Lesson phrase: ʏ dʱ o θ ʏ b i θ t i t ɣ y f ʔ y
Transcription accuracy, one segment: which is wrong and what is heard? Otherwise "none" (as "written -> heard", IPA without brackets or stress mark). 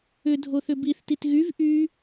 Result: f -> v